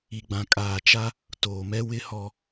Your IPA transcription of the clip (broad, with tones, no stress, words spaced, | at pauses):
i˨ɡ͡bã˨kʼaː˨t͡ʃa˦ | toː˨mɛ˦ wɪ˦hɔ˦